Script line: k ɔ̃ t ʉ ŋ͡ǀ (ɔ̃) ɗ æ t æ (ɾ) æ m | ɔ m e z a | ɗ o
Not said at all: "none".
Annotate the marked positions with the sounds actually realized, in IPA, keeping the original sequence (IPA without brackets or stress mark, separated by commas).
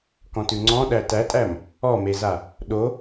ɔ̃, tʼ